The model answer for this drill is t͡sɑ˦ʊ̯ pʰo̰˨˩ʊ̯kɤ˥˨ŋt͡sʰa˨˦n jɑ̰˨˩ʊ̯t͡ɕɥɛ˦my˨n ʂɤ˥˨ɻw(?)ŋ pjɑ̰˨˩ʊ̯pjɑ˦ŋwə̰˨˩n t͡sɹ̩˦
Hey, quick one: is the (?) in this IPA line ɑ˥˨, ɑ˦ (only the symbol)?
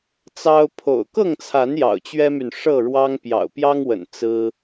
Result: ɑ˦